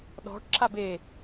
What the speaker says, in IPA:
ɗɔ̤ʈǁab e

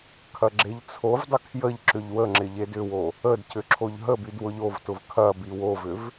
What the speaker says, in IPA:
kʰɐɡ͡ǁeʎt͡sʰovdˤə kʰjəʎǁʏʎ wəŋ͡ǁɪ ʎedʏwo | ədcʏ ǁʰoʎɦəbyd wʊʎovtʊv kʰɐbi wovʏv

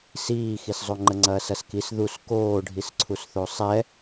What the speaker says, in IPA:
siːxiszˤo ŋ͡ǃəŋ͡ǀɐːsɐskis ðus koːɖʱisǀʰusθo sˤɛ

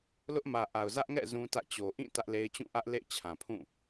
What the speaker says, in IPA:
lʊ˦ʔmä˨ʔa˨ʊ̯ zä˦ʔŋɛ̰˦˨ zũ˦tä̰˦˨t͡ɕo˨ ʔĩ˦˨ tä˦ʔle˦ɪ̯ t͡ɕũ˦˨ʔä˦ʔ lḛ˦˨ɪ̯t͡ɕʰã˨pʰũ˦˨

